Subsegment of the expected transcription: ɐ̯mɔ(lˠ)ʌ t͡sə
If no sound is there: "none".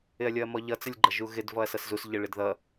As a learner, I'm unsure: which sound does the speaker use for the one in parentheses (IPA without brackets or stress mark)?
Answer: ʎ